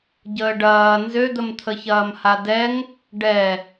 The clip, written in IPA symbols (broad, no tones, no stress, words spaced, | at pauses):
ɟəːɖɐː nzød̪əmt̪ʰəçɐːm hadɛŋ | ɖɛ